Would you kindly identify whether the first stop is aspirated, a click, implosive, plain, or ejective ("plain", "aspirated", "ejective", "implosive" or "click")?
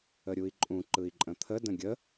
click